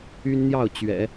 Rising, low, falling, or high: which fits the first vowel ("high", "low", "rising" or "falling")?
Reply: high